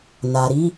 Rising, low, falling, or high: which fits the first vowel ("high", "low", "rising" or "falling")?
low